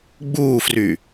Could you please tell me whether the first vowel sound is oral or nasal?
oral